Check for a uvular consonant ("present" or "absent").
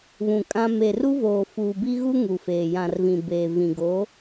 absent